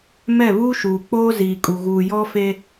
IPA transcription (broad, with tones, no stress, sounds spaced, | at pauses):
m ɛ˦˨ β uː˦ ʃ uː˨ k͡p oː˦ z iː˨ kʼ u˨ ɣ uː˨ j ɔ˦ f e˦